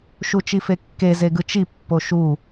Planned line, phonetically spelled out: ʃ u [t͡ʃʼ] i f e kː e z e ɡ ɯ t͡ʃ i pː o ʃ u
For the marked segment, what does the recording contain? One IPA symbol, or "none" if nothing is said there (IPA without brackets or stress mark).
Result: t͡ʃ